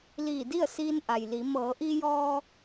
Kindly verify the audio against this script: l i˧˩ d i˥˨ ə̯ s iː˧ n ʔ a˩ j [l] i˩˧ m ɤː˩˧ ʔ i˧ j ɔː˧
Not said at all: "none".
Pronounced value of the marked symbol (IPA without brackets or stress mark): l